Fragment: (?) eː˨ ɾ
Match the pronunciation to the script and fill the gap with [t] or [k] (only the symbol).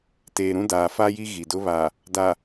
t